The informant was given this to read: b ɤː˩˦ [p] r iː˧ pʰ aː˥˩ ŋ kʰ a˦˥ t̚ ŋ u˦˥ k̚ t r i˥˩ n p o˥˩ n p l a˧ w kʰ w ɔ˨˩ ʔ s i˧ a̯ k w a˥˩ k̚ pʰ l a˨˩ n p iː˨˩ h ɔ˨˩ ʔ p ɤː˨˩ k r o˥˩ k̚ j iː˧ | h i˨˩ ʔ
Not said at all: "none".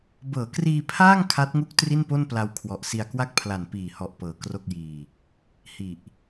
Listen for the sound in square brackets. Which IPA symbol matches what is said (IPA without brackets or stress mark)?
k